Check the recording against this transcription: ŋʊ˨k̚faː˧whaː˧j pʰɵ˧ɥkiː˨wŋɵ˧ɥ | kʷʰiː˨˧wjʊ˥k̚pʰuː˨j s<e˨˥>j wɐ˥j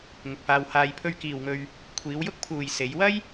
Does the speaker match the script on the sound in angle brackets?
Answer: no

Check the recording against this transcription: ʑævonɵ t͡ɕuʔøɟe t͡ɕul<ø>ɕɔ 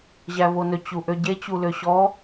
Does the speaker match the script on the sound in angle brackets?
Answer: yes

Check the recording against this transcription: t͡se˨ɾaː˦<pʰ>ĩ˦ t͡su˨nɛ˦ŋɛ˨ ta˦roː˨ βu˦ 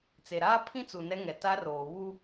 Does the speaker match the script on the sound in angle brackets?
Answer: yes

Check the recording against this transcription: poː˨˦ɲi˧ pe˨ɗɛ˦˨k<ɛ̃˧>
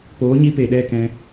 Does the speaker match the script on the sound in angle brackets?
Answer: yes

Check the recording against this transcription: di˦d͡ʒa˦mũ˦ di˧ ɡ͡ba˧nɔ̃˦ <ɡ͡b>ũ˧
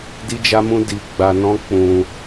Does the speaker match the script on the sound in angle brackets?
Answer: no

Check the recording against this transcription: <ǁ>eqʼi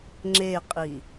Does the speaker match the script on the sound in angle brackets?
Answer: no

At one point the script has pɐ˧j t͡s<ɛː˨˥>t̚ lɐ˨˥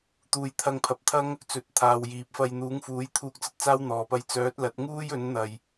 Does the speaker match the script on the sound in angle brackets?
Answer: no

